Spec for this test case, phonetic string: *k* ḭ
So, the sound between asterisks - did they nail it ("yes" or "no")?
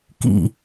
yes